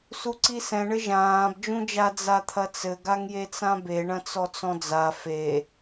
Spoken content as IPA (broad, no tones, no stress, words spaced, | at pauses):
suǀisɛ̃ ɳɘʒãːb d͡ʒũd͡ʒa d͡zat̪ʰɐt͡sɘ ɡaŋjet͡sãbe ɳɐ̃t͡sɔt͡sɔ̃d͡za fe